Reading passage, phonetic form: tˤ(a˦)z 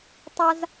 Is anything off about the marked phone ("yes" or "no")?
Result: no